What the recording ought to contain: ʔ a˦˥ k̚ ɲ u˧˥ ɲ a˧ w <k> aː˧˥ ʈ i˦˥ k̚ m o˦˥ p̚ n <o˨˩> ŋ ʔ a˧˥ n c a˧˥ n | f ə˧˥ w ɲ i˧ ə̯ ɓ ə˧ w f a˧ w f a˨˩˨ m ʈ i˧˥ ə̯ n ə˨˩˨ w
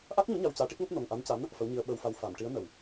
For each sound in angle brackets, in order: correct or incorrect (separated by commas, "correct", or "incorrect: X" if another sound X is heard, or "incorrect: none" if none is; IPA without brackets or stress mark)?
incorrect: c, correct